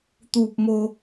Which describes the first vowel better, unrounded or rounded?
rounded